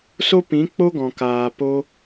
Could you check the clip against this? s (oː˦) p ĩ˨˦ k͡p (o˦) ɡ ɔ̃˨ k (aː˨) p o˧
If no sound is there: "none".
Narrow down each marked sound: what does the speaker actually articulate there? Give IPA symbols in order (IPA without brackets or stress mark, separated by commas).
o˦, o˦, aː˨